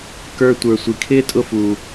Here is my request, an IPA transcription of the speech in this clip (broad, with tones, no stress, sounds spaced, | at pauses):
k ə˞˦ tʷ ə˞˨ sʷ i˩ kʰ ɪː˥ tʼ ʊ˦ f u˩